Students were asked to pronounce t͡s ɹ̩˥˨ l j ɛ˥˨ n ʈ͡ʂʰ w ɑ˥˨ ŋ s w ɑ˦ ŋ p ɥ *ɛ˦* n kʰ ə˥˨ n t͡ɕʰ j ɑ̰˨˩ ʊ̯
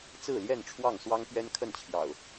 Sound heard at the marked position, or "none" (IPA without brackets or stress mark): ɛ˦